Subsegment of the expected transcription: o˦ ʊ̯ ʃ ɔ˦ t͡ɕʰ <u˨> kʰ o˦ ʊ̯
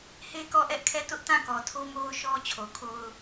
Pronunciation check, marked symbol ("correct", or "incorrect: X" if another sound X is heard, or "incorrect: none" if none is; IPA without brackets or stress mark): incorrect: o˨